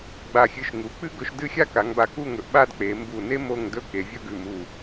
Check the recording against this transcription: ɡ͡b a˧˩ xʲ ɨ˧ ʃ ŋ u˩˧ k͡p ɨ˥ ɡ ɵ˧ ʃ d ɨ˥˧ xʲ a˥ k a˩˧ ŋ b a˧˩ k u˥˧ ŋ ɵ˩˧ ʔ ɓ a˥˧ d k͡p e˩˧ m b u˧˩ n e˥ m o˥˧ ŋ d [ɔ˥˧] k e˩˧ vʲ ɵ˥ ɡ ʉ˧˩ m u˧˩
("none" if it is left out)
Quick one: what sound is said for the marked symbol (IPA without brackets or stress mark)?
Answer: ɵ˥˧